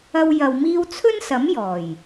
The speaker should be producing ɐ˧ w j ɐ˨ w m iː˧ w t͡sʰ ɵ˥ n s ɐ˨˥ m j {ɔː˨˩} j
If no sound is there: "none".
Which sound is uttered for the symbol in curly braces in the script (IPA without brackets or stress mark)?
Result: ɔː˨˩